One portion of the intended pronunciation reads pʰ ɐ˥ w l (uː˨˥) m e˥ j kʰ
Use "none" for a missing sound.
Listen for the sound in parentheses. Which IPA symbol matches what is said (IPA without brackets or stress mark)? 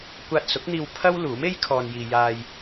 uː˨˥